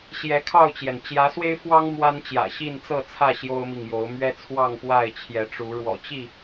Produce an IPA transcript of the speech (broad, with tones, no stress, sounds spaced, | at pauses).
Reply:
ɕ j ɛ˨˦ kʰ ɑ˥˨ ʊ̯ t͡ɕ j ɛ˩ n t͡ɕ j ä˨˦ s w e˦ ɪ̯ f w ɑ˦ ŋ m w a˦ n t͡ɕ j ä̰˨˩ ɕ i˥˨ n t͡s ɤ˥˨ t͡sʰ ä˥˨ ɕ j o˦ ʊ̯ m i˨ ŋ j o˨˦ ʊ̯ m ɥ ɛ˦ t͡sʰ w ɑ˥˨ ŋ p w a˥˨ ɪ̯ t͡ɕʰ j ɛ˨˦ ʈ͡ʂ u˨˦ ɻ w ɔ̰˨˩ t͡ɕ i˥˨